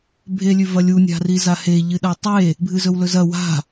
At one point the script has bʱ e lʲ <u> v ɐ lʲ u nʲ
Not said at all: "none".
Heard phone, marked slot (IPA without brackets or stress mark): ʉ